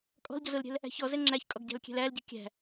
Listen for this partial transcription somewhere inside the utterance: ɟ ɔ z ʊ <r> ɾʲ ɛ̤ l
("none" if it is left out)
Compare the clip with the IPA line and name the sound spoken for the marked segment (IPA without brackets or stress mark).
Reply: l